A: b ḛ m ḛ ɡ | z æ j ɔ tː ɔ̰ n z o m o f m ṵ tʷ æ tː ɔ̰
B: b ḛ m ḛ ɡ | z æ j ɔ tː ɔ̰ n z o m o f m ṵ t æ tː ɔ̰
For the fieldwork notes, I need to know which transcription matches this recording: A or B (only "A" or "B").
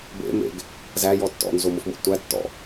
A